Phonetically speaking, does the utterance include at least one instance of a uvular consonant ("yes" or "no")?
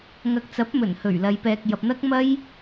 no